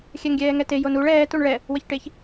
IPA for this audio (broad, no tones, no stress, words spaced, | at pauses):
xʲɛŋɡʲɛːŋɛte jonuɭ ɛː tuɳɭɛ | wəçʈeç